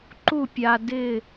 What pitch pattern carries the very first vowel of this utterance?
falling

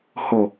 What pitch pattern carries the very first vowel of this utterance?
low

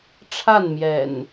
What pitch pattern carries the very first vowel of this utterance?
falling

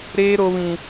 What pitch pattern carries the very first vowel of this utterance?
high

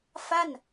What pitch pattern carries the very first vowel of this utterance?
falling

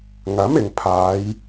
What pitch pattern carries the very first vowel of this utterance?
rising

